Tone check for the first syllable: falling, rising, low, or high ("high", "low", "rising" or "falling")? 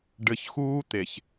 low